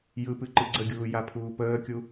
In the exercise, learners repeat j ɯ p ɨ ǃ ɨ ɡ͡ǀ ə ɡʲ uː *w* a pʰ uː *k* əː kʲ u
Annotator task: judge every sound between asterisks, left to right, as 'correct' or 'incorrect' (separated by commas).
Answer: incorrect, incorrect